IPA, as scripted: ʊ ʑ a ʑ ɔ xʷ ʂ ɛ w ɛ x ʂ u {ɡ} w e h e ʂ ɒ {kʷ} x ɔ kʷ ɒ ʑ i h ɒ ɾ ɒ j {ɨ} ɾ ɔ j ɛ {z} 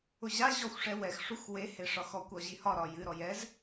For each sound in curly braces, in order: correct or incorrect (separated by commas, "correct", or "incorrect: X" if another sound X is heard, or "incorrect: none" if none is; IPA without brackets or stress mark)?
incorrect: x, incorrect: none, correct, correct